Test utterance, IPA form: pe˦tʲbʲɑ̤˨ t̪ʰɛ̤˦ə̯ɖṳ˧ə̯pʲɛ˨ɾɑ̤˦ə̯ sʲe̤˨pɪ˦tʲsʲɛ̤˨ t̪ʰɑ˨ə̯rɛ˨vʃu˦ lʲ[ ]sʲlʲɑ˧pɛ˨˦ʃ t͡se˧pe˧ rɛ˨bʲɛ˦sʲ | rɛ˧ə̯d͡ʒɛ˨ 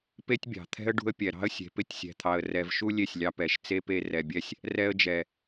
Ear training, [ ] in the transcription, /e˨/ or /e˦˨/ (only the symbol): e˦˨